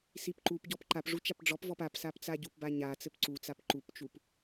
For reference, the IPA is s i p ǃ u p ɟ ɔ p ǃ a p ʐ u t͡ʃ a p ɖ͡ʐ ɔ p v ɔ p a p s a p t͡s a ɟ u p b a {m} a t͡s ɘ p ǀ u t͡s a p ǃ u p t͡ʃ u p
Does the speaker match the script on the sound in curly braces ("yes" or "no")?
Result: no